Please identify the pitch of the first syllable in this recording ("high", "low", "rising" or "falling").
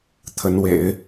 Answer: rising